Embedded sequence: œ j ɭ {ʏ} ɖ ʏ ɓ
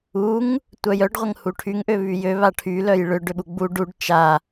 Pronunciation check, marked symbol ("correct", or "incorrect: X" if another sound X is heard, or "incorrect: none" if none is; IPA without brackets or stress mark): correct